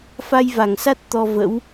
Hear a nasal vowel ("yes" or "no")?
no